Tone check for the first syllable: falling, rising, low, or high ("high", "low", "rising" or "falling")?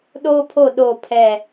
high